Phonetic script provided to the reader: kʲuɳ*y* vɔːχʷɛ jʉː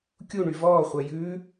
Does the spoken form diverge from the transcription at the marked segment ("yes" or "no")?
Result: no